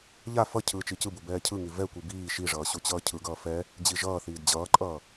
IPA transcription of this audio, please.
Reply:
ʎ a f ʌ cʰ ɯː t͡ʃ i c ɯ b u b ɛː cʰ ɯ ŋ i v ɛ kʷ i b iː ʃ i ʐ ʌː ɕ u t͡ɕ ʌː cʰ ɯ ɡ ʌː f ɛ | d͡ʑ i ʒ ʌː θ iː d d͡ʑ ʌː ǃʼ ʌː

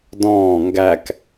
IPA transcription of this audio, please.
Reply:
d ɔ̃ː ŋ ɡ æ k

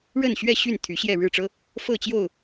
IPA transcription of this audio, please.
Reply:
ɻ ə˥˨ n ɕ ɥ ɛ˥˨ ɕ y˥˨ n t̪ʰ y˨˦ ɕ j ɛ˥˨ ɻ ɻ̩˥˨ ʈ͡ʂ ɤ˦ | f ɤ˥˨ t͡ɕ j o˥˨ ʊ̯

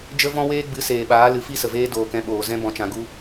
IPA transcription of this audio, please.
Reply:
d͡ʒ ə˦ v ɔ̃˦ w eː˦ ɡ͡b ɨ˨˦ s eː˨ ɓ aː˨˦ l ɨ˨˦ f i˦ s ə˨ v eː˦ d oː˨ k ɛ̃˧ ɓ oː˨ z ɛ̃˦ b ɔ̃˨ t͡ʃ ã˨ ɡ u˦

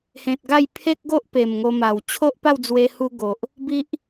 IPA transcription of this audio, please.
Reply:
h ẽ˨ t̚ ɡ a˥˧ j pʰ e˦ k̚ ɡ o˦ ʔ p e˨˩ m ŋ o˧ m a˨˩ w t͡ɕʰ o˦ ʔ p a˥˧ w d͡z w e˧ h u˧ ɡ o˨ ʔ | b i˦ ʔ

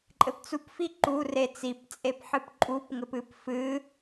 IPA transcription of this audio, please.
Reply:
ǃʼ ɘ p t͡s u p f i ǃ u r e t͡s i p t͡sʼ e p ħ ɨ p ǃʼ u p ŋ ɘ p ɨ p f ɨ

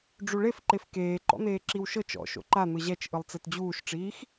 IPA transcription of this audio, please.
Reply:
ɖ͡ʐ u ɭ e f ǃ e f k eː ǃ ɔ̰ n̪ eː ǁ i w ʃ ɤ t͡ʃ ɔ̰ ʃ o̰ ǃ a n̪ ɯ ʑ ɛ t͡ʃ ʔ ɯ lˠ t͡s e t d͡ʑ uː ʃ ʈ͡ʂ iː x

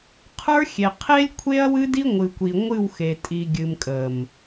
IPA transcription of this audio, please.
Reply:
qʰ ə˞˦ xʲ e˨ qʰ e˦ lʲ kʷʰ e˦ ɐ̯ w ɨ˦ d i˦ ŋʷ ɨ˨ kʷ i˨ ŋʷ ɨ˦˨ w x e˨ tʼ i˨ ɡʲ ɨ˨ m kʼ ə˨ m

